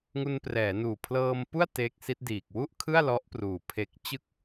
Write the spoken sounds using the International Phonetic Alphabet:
ŋu˧nprɛː˩˦ nuː˨˩pʰlɤː˧mpu˥˩a̯ te˦˥k̚ si˦˥t̚ diː˨˩k̚wu˥˩ʔkʰɯ˥˩a̯ lɔ˦˥ʔpruː˨˩pʰe˦˥k̚ t͡ɕɯ˥˩k̚

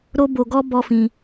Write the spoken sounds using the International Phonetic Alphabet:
ɾo˦ bo˧ɡɔ˦ bɔ˦fĩ˧

